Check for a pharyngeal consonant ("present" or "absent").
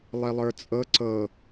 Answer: absent